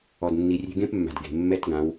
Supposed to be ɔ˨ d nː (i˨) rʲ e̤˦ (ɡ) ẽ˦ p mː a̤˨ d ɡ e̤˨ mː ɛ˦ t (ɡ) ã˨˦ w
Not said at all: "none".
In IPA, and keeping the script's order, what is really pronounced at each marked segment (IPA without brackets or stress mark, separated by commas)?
i˨, ɡ, ɡ